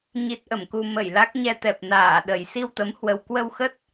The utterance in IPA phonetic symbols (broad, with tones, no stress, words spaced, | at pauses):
ɲi˦˥t̚ʔə˧˩mku˧ mə˧˩jla˦˥k̚ɲɛ˧t̪ɛ˨˩p̚ naː˧˩ɗə˨˩j si˧wt̪ə˨˦mhwə˨˩w kwə˧wxə˦˥t̚